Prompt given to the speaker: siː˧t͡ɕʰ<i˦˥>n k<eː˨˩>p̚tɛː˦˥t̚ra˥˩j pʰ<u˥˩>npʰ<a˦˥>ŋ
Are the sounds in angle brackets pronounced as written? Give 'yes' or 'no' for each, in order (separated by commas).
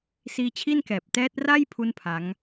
no, no, yes, yes